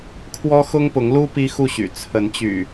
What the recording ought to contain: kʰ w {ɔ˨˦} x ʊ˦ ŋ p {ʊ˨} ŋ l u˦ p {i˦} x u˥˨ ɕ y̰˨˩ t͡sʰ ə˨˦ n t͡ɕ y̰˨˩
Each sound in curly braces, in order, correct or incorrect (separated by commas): incorrect, incorrect, correct